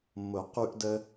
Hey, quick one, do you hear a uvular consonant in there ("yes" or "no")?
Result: yes